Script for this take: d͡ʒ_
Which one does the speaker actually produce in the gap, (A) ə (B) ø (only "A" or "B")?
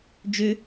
B